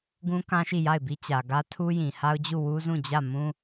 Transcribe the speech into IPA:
ɡũ˦kã˦ʃi˦˨ ja˦˨ɪ̯bi˦t͡ɕä˨ɡä˦ tʰu˦jĩ˨ha˦ʊ̯d͡ʑu˦˨ wu˦zũ˦˨d͡ʑä˦˨mũ˦

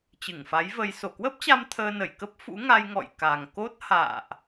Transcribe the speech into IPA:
t͡ɕɨ˧˩ŋfa˨˦jvə˧j so˧˩kwə˦˥p̚t͡ɕa˧m t̪ʰəː˧nə˧˩jkə˦˥p̚ fṵ˧˥ŋa˧j ŋɔ̰˧˨j ka˨˩ŋ ko˦˥t̚ ha̰ː˧˨ʔ

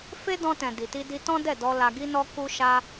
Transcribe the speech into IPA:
fe˦dɔ̃˧tɛ̃˨ di˨ti˧ di˧ tɔ̃˦dɛ˦˨dɔ˧ la˧ɡi˦nɔ˦ ku˧ʃa˧

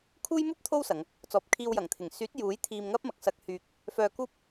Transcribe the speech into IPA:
kʰuː˥jmuː˥p̚t̪ʰo˥w sɐ˨˧ŋ | t͡sɔː˨p̚kʰiː˧wjɐ˨˩ŋt̪ʰɪ˨˩ŋ syː˨˥t̚ juː˨˥j t̪ʰiː˧mŋɐ˥p̚mɐ˨k̚ sɐ˧k̚hyː˧k̚ | fœː˧kuː˥p̚

